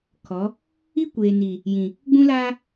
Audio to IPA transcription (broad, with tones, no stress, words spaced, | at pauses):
kʰɔ˨˦ | i˦kʷeː˨ni˨ | jĩ˨ | ɡ͡bũ˦laː˦